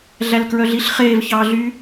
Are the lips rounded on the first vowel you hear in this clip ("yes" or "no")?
no